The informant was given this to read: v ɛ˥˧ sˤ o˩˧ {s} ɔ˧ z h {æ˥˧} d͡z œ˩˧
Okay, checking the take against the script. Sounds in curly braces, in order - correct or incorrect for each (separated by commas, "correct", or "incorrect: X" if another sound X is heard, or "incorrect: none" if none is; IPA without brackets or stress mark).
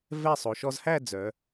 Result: incorrect: ʃ, correct